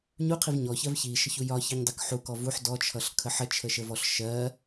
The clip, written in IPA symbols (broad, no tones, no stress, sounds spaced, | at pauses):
ɲ u qʰ i v ɲ ɔ ç ɜ v ç i ʃ ə ç u j ɒ ç i ɲ dˤ ɜ k ħ u k ɔ v u ħ d ɔ t͡ʃʰ ʌ ɬ kʰ ə ħ ə t͡ʃʰ ə ʃ ə v ɔ ɬ ʃ ɜ